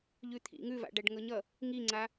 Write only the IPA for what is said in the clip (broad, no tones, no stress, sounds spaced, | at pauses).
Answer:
ʎ ʉ t̪ʰ ḭ ŋ ʉ v a̰ ɖ æ ɖ ŋ ɤ ɲ ʌ | ŋ i ŋ͡ǀ a